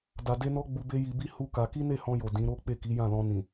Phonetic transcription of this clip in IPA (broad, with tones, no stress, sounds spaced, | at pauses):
d a˧ d e˦ n ɔ˦ ɡ͡b u˧ b e˦ j i˧ b i˦ h u˦ k a˧ k i˦ n e˦˨ h ɔ̃˧ j o˨ d ĩ˨˦ ɾ o˦ k͡p e˦˨ k i˨˦ j ã˦˨ l ɔ̃˧ n ĩ˨